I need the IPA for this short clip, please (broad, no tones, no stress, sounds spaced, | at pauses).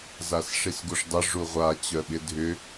z a s ʂ i s ɡ u ʂ dˤ ɪ ʐ u ʁʷ a t͡ɕ œ ɓ ɪ dʱ ʏ